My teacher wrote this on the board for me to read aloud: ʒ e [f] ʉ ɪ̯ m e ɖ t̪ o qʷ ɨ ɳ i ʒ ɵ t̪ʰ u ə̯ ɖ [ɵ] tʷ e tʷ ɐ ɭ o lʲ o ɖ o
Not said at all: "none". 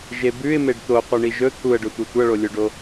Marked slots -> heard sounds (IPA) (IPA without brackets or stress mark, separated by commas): b, ɵ